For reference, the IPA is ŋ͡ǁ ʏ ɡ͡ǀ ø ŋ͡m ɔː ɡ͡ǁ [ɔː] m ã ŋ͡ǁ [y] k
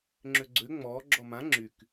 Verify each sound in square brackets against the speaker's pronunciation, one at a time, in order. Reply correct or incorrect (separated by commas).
incorrect, correct